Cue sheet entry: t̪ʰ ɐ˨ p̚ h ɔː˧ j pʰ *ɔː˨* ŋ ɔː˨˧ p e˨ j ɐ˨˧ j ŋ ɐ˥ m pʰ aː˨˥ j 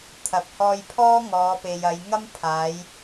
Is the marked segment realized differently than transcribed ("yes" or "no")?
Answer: yes